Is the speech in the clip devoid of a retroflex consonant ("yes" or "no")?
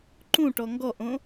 no